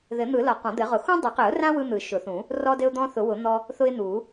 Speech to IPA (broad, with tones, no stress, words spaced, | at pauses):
ðɘ˨˩˦n̪ɯ˨˩˦lɒ˨˩˦ qɔ̃˨˩˦d̪ɘ˨˩˦ʁʊ˨˩˦ xũ˦dˤɘ˨˩˦qɘ˨˩˦ʊ̯rã˦ wɯ˦n̪ɯ˨˩˦ʃʊ˨˩˦θũ˨˩˦ | rɔ˦dɘ˦ʊ̯d̪ɔ̃˦ θʊ˨˩˦wʊ˨˩˦ n̪ɔ˦ | θʊ˦ɪ̯ n̪u˨˩˦